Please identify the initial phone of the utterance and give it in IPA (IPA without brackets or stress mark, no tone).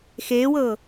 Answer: x